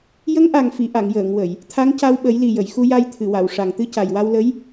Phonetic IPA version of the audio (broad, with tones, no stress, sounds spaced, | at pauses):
j ə˧˥ ŋ ʔ a˨˩ ŋ f i˨˩˨ ʔ a˨˩˨ ŋ j əː˨˩˨ ŋ w ə˨˩˨ j | t̪ʰ a˧˥ ŋ c a˧ w ɓ ə˨˩˦ j l i˨˩ j ə˨˩˨ j x u˧ j a˧ j t̪ʰ ɨ˨˩˨ w a˨˩˨ w ʂ a˨˩ ŋ t̪ ɨ˧ c a˨˩ j w a˧ w l ə˧˥ j